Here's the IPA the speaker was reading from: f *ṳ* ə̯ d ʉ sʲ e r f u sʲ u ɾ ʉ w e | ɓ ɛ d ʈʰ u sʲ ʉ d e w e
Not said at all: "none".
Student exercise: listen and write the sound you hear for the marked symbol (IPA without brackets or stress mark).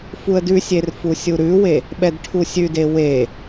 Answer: u